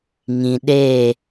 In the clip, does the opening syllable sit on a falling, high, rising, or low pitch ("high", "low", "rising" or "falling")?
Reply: low